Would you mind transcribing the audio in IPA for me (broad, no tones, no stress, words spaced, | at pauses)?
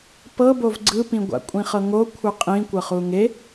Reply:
pɤ bovɡ͡ǀɯpĩɡʷa̰ kʷʼĩχɤŋo kʷʰɯqʼĩ kʷɤχuŋe